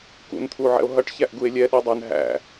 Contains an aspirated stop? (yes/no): yes